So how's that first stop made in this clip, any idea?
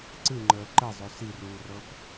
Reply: click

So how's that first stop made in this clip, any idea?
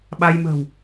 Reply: implosive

